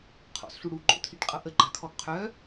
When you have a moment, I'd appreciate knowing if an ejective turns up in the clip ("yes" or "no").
yes